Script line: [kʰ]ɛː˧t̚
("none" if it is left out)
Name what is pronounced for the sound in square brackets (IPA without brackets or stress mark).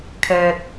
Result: kʰ